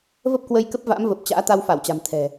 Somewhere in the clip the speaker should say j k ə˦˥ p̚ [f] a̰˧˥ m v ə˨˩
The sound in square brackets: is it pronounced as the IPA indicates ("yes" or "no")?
no